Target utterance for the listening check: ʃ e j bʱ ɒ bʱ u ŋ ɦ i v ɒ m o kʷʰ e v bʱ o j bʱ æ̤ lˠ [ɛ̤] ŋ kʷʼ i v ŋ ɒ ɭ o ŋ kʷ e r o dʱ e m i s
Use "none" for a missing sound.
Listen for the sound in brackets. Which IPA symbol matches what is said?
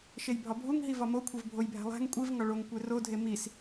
æ̤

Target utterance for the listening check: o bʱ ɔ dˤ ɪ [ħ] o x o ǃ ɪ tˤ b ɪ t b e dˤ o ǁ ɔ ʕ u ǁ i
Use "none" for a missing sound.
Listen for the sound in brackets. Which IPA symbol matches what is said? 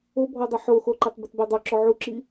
ħ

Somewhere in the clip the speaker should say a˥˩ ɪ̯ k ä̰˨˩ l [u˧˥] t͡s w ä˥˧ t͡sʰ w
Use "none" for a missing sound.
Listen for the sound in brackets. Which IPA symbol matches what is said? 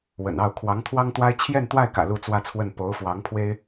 u˥˧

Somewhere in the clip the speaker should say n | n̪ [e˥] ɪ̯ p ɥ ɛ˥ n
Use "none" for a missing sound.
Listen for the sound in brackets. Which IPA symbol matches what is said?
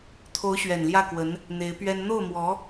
e˧˥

